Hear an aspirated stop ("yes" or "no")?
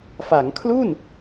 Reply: yes